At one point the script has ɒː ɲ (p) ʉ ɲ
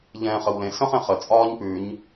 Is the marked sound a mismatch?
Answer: no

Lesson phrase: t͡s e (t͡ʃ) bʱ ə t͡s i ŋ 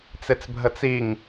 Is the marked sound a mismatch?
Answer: yes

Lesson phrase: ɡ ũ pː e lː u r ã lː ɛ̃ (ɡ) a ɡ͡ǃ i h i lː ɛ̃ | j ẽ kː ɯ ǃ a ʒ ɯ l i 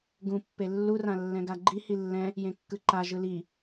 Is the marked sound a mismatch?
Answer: no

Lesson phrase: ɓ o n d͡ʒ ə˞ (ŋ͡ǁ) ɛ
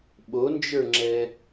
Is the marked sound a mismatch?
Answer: no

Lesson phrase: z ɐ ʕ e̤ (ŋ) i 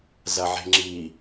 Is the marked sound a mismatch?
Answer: yes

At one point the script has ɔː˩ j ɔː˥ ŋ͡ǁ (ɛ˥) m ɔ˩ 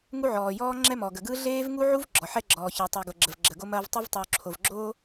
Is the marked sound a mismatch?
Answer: no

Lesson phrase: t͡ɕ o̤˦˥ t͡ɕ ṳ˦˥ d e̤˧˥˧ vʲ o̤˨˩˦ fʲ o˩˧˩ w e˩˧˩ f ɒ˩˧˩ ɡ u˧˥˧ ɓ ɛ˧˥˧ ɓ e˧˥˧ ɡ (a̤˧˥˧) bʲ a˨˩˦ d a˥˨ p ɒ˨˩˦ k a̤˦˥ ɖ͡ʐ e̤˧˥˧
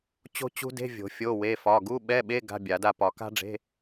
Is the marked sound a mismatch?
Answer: no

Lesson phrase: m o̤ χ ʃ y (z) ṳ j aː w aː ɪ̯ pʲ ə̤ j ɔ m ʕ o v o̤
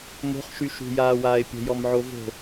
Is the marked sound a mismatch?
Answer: yes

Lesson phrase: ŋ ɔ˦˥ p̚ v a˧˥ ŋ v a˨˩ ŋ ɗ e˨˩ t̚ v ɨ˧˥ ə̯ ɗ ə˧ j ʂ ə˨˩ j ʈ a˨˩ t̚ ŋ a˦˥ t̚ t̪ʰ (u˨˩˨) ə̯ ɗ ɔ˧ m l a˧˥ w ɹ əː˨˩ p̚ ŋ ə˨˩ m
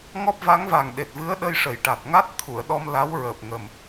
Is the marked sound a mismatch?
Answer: no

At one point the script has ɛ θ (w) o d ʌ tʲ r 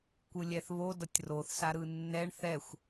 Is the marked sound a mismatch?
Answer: yes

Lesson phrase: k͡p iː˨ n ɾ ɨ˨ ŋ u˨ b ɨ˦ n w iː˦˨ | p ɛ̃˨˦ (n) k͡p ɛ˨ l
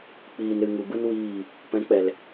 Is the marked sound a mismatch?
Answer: yes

